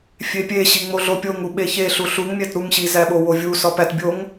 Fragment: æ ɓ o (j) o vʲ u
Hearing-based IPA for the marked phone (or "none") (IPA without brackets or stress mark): w